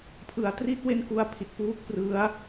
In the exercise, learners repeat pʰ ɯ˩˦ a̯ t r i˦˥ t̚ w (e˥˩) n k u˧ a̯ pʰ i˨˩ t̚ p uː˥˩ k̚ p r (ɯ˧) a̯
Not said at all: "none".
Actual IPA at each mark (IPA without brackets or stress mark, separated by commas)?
e˥˩, ɯ˦˥